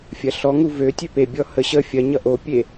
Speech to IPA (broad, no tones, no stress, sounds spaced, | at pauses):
fʲ ɐ ɬ ɔ ŋ u v ø tʲ ø p e bʲ ɔ h ə ɕ ə fʲ ɐ ɲ ʌ ʔ o pʲ e